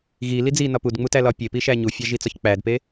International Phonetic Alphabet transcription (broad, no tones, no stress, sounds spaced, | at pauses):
ɣ i l i d͡z i n ɒ p u d ŋ͡m u t æ l ɒ pʲ e p i ʃ æ ɲ u fʲ æ ʒ i t͡s ɒ ç k͡p æ d p e